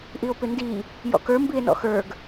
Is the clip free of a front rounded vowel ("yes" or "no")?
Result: yes